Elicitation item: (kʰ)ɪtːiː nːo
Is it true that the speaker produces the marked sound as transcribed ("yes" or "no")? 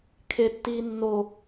yes